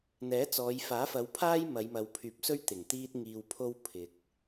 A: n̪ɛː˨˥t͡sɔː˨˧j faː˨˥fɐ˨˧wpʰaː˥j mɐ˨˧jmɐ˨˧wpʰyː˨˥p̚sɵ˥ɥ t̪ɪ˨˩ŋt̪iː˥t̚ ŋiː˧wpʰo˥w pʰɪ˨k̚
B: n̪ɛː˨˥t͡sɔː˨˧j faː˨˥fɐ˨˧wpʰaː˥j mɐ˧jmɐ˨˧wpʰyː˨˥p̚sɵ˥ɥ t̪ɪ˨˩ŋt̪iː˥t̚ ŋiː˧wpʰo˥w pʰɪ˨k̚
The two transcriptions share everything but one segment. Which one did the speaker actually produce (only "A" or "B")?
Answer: A